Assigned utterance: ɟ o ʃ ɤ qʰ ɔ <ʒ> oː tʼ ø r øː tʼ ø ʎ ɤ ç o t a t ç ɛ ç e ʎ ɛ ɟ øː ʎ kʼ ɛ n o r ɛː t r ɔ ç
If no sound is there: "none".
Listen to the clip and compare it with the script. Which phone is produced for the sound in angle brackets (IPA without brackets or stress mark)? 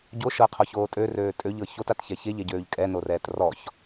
ç